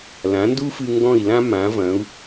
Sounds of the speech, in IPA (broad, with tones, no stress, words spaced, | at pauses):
lã˩˥ndu˥fɨ˧ ŋɡɔ̃˥˩i̯lã˥ mã˩˥ vɐ̃˩˥u̯